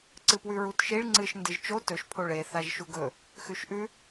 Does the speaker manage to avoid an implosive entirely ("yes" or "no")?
yes